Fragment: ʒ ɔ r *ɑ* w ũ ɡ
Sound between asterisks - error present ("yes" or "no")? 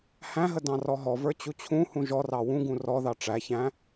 no